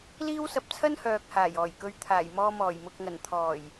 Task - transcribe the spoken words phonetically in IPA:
liː˥wsɐ˧p̚t͡sʰɐ˥n hœː˨k̚haː˨˩j ɔː˨˩jkɵ˨˧ɥt̪ʰaː˨˩jmɔː˧ mɔː˨˩jmʊ˨k̚ŋɐ˨˩nt̪ʰɔː˨˩j

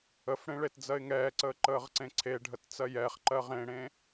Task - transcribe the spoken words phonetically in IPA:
əfɽẽ ɭetd͡zɜɪ̯ŋɛːǀəː ǃəːʁǀẽǀʰeɖʱət t͡sɜjɛχǃɜ ʁẽɽẽ

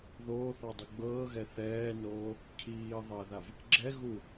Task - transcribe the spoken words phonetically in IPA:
ðoːθɔdˤɯ ɡ͡bɤːɣɛ θɛːnoː | cʰiː ðˤɛðav | ɡ͡ǁɛ ɣu

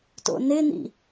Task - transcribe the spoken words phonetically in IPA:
to̰nɪnḭ

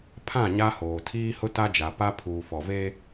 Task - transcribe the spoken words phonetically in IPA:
pʰã˦˨ɲa˦hoː˨ tʰiː˦hʊ˦ta˦d͡ʒa˨ pa˦ pʰuː˨fɔ˨ve˦

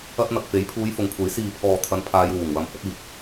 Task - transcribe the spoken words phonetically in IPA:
ɐ˧t̚n̪ɐ˨k̚fe˨˥j pʰuː˨˧jfʊ˨˥ŋkʷʰe˨˥j siː˨pʰɔː˨t̪ʰɐ˨˧n pʰaː˧jwuː˨˩ŋwɐ˨˧m hɵ˧t̚iː˨t̚

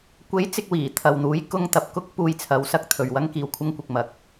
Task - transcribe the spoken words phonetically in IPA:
kʷe˨˥j t͡sɪ˧k̚wiː˨˩ t̪ʰɐ˨wn̪uː˨˥j kʊ˧ŋ t̪ɐ˨p̚kʊ˥k̚ puː˧jt͡sʰɐ˨˥wsɐ˧k̚ t̪ʰɵ˨ɥwɐ˥ŋ kiː˨wkʷʰɐ˧ŋkʷɪ˨k̚mɐ˨k̚

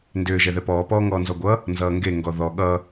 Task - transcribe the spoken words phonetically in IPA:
ndʏː ʒɛðɛpɔː pɔːŋɔːnzɔɡʷʌ | nzʌːŋɡe ŋɡɔðɔ ɠʌ

